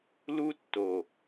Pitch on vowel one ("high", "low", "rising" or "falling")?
high